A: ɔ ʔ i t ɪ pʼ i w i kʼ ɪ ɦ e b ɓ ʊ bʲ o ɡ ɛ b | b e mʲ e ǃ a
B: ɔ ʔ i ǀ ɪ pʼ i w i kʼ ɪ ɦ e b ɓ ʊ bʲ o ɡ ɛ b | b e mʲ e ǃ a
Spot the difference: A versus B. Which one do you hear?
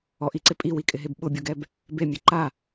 B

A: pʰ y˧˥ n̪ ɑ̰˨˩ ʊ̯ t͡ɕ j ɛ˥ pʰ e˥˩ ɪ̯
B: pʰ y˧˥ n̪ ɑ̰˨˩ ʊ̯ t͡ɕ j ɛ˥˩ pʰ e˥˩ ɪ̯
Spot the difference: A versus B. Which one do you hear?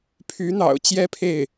A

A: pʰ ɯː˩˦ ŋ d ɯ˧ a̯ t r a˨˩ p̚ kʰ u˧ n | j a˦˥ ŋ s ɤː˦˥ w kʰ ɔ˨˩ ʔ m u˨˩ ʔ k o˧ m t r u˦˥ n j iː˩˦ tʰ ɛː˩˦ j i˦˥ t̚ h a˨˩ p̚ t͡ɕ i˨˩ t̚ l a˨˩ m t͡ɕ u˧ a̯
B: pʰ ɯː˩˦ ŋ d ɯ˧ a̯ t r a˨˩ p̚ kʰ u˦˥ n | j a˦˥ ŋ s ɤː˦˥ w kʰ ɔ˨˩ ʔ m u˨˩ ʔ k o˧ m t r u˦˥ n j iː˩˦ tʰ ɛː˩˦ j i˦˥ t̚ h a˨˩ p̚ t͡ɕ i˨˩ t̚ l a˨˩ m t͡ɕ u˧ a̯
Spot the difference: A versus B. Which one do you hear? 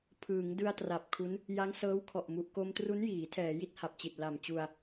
B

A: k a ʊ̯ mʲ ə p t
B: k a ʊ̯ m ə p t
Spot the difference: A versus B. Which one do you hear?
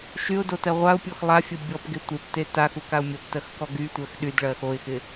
A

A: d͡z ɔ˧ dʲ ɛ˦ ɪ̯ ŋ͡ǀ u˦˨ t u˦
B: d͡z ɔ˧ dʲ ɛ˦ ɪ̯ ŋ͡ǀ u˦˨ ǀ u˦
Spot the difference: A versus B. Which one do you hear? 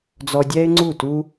A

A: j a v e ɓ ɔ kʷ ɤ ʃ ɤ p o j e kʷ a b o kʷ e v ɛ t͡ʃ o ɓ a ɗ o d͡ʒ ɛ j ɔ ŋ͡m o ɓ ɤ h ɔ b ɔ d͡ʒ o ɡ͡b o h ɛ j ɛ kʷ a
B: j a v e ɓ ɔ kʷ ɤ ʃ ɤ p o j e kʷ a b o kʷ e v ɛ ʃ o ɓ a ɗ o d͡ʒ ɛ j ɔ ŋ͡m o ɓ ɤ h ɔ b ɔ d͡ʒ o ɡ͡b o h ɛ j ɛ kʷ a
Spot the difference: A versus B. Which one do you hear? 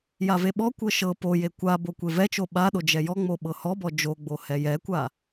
A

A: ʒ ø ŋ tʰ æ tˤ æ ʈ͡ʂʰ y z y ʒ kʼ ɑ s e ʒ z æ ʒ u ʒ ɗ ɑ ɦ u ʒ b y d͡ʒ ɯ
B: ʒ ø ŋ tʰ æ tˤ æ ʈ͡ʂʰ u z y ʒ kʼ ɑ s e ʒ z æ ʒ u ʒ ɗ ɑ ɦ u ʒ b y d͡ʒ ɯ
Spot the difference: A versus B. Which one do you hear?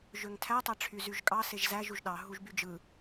A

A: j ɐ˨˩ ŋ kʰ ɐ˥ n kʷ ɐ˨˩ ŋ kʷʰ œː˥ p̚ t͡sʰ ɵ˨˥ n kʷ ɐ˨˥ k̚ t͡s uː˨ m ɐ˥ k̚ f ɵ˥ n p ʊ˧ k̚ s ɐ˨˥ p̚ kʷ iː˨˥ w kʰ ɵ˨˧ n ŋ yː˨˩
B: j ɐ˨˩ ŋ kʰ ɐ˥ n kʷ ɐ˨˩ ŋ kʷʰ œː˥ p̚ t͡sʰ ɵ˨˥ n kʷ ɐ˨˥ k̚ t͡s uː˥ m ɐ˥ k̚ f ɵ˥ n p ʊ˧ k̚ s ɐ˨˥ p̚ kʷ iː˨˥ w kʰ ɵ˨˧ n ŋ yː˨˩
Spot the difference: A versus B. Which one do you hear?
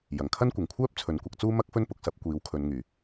B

